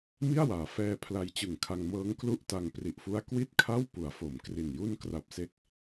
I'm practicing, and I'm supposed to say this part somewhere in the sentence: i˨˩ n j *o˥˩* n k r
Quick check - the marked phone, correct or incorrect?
incorrect